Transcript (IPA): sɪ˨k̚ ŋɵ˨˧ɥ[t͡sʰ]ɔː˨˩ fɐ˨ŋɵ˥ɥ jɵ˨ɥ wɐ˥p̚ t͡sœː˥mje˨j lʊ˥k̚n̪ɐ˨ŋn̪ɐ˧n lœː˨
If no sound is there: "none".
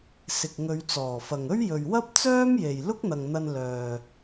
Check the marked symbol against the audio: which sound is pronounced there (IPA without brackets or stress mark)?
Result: t͡s